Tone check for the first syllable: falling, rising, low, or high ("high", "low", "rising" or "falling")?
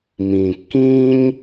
low